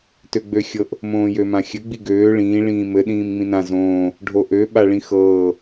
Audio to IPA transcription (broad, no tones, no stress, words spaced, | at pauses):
tøɡ͡bøxʲɤʔ | mõːjømãxʲɘ ɡ͡biɡøː ɭĩː ɭĩːmɘ ɗĩːmŋ͡mĩnã zõː | ɖʱoʔø ɓaɭĩxɤː